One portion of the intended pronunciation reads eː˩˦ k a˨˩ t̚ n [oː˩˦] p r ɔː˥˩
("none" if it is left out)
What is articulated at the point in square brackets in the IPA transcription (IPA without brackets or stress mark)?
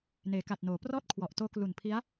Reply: oː˩˦